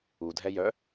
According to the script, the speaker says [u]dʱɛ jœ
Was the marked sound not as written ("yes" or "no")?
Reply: no